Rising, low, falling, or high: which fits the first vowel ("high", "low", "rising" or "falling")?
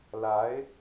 rising